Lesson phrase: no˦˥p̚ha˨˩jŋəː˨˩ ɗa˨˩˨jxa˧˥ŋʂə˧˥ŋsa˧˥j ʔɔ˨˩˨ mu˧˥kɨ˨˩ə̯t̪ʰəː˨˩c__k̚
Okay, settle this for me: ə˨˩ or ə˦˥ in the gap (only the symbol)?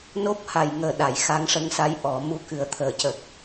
ə˨˩